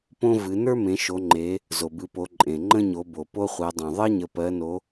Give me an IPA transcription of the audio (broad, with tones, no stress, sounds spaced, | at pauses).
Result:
p õ˦ v ɨ˩˧ n ə˞˦ m ẽ˩˧ ʃ o˩˧ ŋ͡ǃ e˩˧ | z o˩ b ɨ˩˧ p o˩˧ ǃʼ ẽ˩ ŋ͡ǃ ə̃˦ ɲ o˩˧ b o˩ p o˦ χʷ ɜ˩˧ dˤ õ˩ ðˤ ɜ˦ ɲ ə˩˧ p ɜ˩˧ n o˩˧